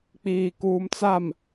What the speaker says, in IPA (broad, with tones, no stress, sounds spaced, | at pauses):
k͡p iː˨ k uː˨ m t͡s a˨ m